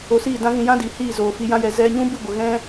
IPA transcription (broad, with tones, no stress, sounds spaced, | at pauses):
o˧ s iː˦˨ d ã˦ ɣ ĩ˧ j ã˦ d i˨ h iː˦˨ z oː˨ f i˧ j ã˦ j ɛ˧ z ɛ˧ ɲ ũ˦ b ɨ˦˨ ɡʷ ə˨ ɣ ɛ̃˦